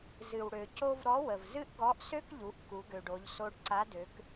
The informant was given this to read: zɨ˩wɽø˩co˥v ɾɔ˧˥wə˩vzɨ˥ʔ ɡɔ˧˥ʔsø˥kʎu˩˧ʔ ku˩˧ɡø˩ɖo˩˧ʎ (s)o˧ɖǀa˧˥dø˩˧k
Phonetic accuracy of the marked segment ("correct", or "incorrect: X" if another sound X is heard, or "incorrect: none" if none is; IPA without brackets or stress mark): correct